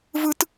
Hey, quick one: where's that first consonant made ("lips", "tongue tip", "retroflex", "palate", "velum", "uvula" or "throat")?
lips